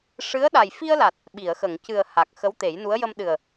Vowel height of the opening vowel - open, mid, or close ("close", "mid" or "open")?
close